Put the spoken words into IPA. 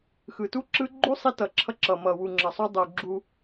x ɯ˨ t u˦ ǁ ɯ˦ ɡ͡ǃ u˦ sˤ i˧ t ʌ˨ ǁʰ ʌ˧ ǁ ʌ˨ m ʌ˨ w u˨ ŋ͡ǁ ʌ˨ sˤ u˧ dˤ u˨ ɡ͡ǁ u˧

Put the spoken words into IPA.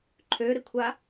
ǃʰ ø ɾ ɪ kʷʰ a

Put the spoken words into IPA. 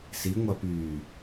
s i ŋʷ a p yː

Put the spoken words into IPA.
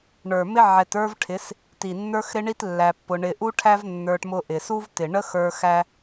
ɳ ə˞˨ m ɪ˦ ʕ ɛ˧ t ə˞˦ v ʈʰ ɪ˨˦ s | t i˨ nː ə˞˦ x ɾ ɪ˦ ɳ i˦ t lː æ˧ pː ʊ˧ ɳ ɪ˧ ʔ u˦ ʈʰ æ˦ v nː ə˞˧ ʈ m ʊ˧ ʔ ɪ˨ s u˦ v t ɪ˨ ɳ ə˦ x ə˞˧ x æ˦

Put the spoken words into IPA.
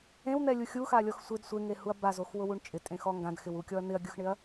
ẽ w n̪ ɛ lʲ u xʲ u x a lʲ ɔ x sʷ ɪ d sʷ e ŋ e h u ɐ̯ b a z o x w ʊ w u ɳ t͡ʃʼ ɪ tʼ ẽ x ɔ ŋ ɡ ã d x ɪ w u kʲ ɔ ɐ̯ n̪ ɪ ɐ̯ ɡʲ ʊ x ɳ ɪ ɐ̯

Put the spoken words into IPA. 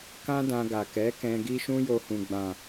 k ã˦ d ã˧ ɡ a˨ k ɛ˨˦ k ɛ̃˧ ɡ i˦ ʃ ũ˦ j o˧ h ũ˨ ɡ͡b ã˨

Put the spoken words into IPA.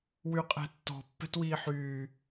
w y qʼ ɛ̤ tː ɔ̤ pː ɛ̤ t w iː ħ yː

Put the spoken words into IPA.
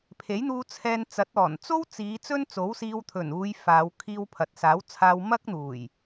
pʰ e˨˥ j n̪ uː˧ t͡sʰ ɛː˧ n t͡s ɐ˨˥ t̚ ɔː˨˩ n t͡s o˥ w t͡s iː˨˧ t͡s ɵ˥ n t͡s o˨˥ w s iː˧ w t̪ʰ ɵ˨˩ n uː˨˧ j f aː˨˧ w kʰ iː˧ w pʰ ɐ˨ t̚ s aː˨˥ w t͡sʰ aː˧ w m ɐ˥ k̚ n̪ uː˨˩ j

